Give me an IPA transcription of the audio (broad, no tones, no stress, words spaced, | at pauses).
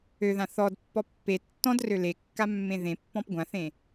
øðã θɔdpːɔ pːe tːɔ̃drø lekːamːẽ ðẽpːɔ̃p ɡʷãθẽ